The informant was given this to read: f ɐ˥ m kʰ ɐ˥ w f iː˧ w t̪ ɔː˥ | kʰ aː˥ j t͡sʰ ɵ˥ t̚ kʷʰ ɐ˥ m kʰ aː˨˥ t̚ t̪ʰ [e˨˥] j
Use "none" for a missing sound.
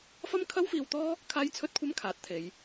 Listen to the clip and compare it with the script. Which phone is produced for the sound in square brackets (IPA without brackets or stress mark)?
e˨˧